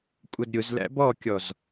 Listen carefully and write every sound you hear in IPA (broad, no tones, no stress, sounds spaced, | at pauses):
kʷʼ ʌ d ɾʲ ʊ z l æ̰ b ɔ kʲ ɔ z